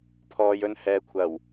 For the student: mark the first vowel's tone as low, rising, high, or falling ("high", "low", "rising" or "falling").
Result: low